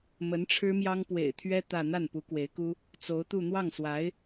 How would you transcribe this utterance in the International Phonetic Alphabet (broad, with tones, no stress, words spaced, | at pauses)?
mə˧˥nʈ͡ʂʰɻ̩˥mjɑ˥ŋ pwḛ˨˩ɪ̯t̪ʰɥɛ˥ t̪ä˥˧ n̪a˥˩npu˧˥kwe˧˥ɪ̯ku˥ | t͡so˧˥ʊ̯t̪u˥˧ n̪wɑ˥˩ŋswa˧˥ɪ̯